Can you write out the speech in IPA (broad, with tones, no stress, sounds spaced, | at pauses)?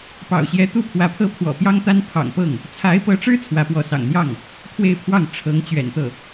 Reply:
p ɑ̰˨˩ ʊ̯ ɕ j ɛ˧˥ t̪ u˥ pʰ w ä˧˥ pʰ ɤ˥˩ pʰ w ɔ̰˨˩ p j ɑ˥ ŋ t̪ a˥ n pʰ ɑ̰˨˩ ŋ p ɤ˥˩ ŋ | t͡sʰ a˧˥ ɪ̯ p ɤ˧˥ ʈ͡ʂ ɻ̩˥ t͡sʰ w ä˧˥ p w ɔ˧˥ s ɑ̰˨˩ ŋ n̪ j ɑ˥˩ ŋ | pʰ w e˥˧ ɪ̯ pʰ w ɑ˥˩ ŋ ʈ͡ʂʰ ɤ˧˥ ŋ t͡ɕ ɥ ɛ̰˨˩ n t̪ ɤ˥˩